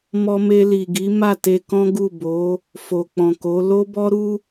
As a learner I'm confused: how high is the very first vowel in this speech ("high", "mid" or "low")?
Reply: mid